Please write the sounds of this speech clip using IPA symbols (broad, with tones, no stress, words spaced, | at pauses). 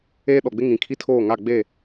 eː˦ɗɔ˨ɡ͡bɪ˦ ŋĩ˨kʰi˦tʰoː˦˨ŋa˦˨ ɡ͡be˦˨